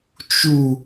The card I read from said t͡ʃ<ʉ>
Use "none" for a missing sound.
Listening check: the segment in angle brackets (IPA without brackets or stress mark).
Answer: u